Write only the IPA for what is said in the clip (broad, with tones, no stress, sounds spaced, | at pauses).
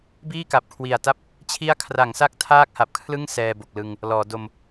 b iː˥˩ k a˨˩ p̚ kʰ w i˨˩ a̯ t a˥˩ p̚ | t͡ɕʰ i˦˥ a̯ kʰ r a˩˦ ŋ s a˦˥ k̚ tʰ aː˥˩ k̚ h a˨˩ p̚ kʰ l ɯ˥˩ ŋ s ɛː˧ b o˨˩ k̚ l ɯ˧ ŋ | l ɔː˩˦ d o˧ m